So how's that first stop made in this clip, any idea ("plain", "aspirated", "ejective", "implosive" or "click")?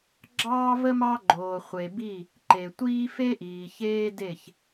click